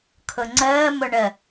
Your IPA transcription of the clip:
kʰ ʊ ŋ͡ǀ əː m ʊ ɳ ə

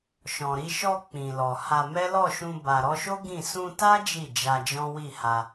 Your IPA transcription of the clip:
ʃ ɔ̃˨ ɾ i˧ ʃ ɔ˧ k͡p ĩ˨ l ɔ˨ h a˧ m ɛ˦ l ɔ˦˨ ʃ ũ˧ b a˨ ɾ ɔ˧ ʃ o˦ ɡ ĩ˦˨ s ũ˧ t a˦ d͡ʒ i˦˨ d͡ʒ a˧ d͡ʒ ɔ̃˦ w i˦˨ h a˧

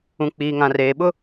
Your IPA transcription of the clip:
ũ˨ k͡p iː˨ ŋ ã˨ r eː˨ ɓ ʊ˦

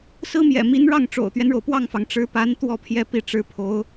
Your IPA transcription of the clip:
s ɹ̩˥ m j ɛ̰˨˩ m i˧˥ n ɻ ɑ˥˩ ŋ ʈ͡ʂ o̰˨˩ ʊ̯ t̪ ɥ ɛ˦ n ɻ o˩ ʊ̯ p w ɑ˥˩ ŋ f ɑ˩ ŋ ʈ͡ʂ ɻ̩˧˥ p a˧˥ n t̪ w ɔ˥˩ pʰ j ɛ˥ p i˥˩ ʈ͡ʂ ɻ̩˧˥ pʰ o˧˥ ʊ̯

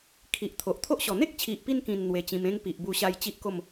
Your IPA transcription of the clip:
kʰ i˨ ʔ t̪ʰ o˨ ʔ t̪ʰ o˦ ʔ ɕ ɔ˨˩ n̪ e˦ k̚ t͡ɕʰ i˨ ʔ p i˧ n k ĩ˨˩ n n̪ w e˧ t͡ɕ ĩ˧ m ẽ˦ ŋ p i˨ ʔ b u˧ ɕ a˧ j t͡ɕ i˦ ʔ k o˥˧ m

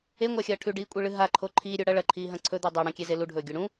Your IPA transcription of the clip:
e ŋʷ a xʲ ɐː ʈʰ ʉ ɖ iː kʷʼ e ɭ ɨ ɦ a ǃʰ o ǃʰ iː ɾʲ ɵ ɽ ɐ ɭ ɐ ǃʰ iː ɦ ɐ̃ ǀʰ ɵ d̪ ʉ dˤ e ɽ ɐ̃ kʲ e z e l u ɖʱ ɵː ɡʲ ɵ ɽ ũ

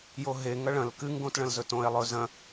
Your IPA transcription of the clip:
j o ɦ e ŋ ɐ ɭ ɐ̃ l k ɨ ŋ ɡ õ t ɭ ɐ̃ l z ɵ t õ e̯ lˠ ɵ z ɐ̃

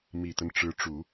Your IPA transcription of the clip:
m i˨˩ t̪ ə˦ n ʈ͡ʂ ɻ̩˧˥ ʈ͡ʂ u˨˩˦

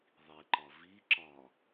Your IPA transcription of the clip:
ðˤ i ǃ ɒ v i ǁ ɒ

